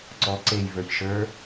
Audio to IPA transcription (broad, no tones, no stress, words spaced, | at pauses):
ǀɔ ǀej və˞çʃə˞